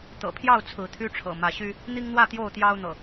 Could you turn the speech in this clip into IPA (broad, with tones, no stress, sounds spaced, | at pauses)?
t̪ ɤ̰˨˩ pʰ j ɑ˥˨ ʊ̯ t͡sʰ ɹ̩˨˦ t̪ʰ y˦ ʈ͡ʂʰ ɤ̰˨˩ m ä˨˦ ɕ y˦ | n̪ i˦ ŋ n̪ w ä˥˨ t̪ j o˥˨ ʊ̯ t̪ j ɑ˦ ʊ̯ n̪ ɤ̰˨˩